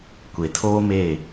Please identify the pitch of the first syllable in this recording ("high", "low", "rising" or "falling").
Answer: low